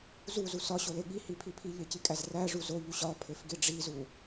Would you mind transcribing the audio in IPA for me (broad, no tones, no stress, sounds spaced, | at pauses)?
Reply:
z u z u s ɒ ɕ o l e ɠ i h i pʰ i pʰ i ʎ e c i kʼ æ z r æ ʐ u z o ʎ u ɕ ɒ pʰ e f ɡ i ɖ͡ʐ i z u